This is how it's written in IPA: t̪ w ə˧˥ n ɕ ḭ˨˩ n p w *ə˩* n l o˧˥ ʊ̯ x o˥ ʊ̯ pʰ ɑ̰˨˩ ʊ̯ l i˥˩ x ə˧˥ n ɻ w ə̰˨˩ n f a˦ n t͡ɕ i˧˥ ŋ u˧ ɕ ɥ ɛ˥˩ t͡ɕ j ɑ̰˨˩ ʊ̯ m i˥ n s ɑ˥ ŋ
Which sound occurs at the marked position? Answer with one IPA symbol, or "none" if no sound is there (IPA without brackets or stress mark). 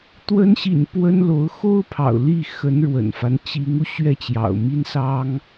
ə˥